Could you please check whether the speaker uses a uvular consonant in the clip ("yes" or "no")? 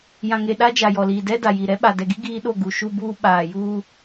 no